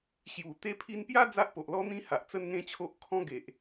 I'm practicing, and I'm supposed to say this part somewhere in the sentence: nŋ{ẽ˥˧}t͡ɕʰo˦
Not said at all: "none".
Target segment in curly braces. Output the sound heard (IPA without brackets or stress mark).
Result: ẽ˥˧